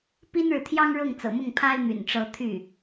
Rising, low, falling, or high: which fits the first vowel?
high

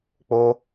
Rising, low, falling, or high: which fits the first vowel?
high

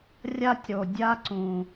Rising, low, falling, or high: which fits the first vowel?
high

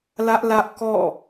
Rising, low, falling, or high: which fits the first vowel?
high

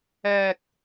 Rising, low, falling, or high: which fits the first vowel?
low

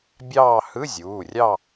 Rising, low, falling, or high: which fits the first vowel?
falling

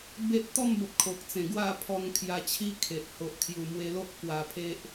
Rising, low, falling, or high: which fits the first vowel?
high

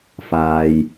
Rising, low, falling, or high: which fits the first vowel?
low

